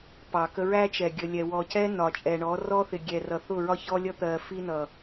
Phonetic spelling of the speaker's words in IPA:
pɑ˨kə˦ ɹæ˦t͡ʃɛ˨ ɡʲə˨lʲɛ˨ wɔ˨cɛ˦ nɒ˨t͡ʃʼɛ˨ ɳɔ˨˦rɔ˦θɪ˨ ɡʲɛ˨rʌ˨θʊ˦˨ɹɒ˦ çɔ˦lʲʌ˦ t̪ɜ˨ fi˦nʌ˨

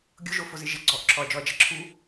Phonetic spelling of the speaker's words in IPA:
ɡʲʊʒofozɪ ʒɪ ɡ͡ǀɔʔǁʰɔɐ̯d͡ʒɔɐ̯d͡ʒɛ ǁʰu

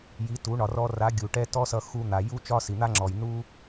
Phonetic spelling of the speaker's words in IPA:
ji˩˥tu˩˥ ɳɒ˩rɔ˧ra˩˥ ɡʲu˩ʈɛ˥ tɔ˥sʌ˧ xu˧n̪a˩ ju˥t͡ʃɒ˥si˩ n̪a˥ŋ͡ǁɔ˩j nu˥

